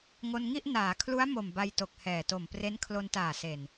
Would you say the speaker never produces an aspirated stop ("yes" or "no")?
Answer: no